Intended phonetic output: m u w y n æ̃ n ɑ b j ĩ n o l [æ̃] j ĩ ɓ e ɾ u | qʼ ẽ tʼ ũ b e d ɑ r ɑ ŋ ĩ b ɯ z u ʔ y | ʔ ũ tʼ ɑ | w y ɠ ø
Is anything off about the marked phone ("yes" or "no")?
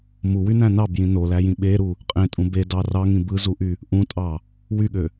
yes